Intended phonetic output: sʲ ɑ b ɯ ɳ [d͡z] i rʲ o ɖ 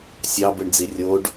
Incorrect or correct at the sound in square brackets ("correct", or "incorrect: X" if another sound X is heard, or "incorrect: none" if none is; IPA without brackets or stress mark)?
correct